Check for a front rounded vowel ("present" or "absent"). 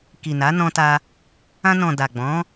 absent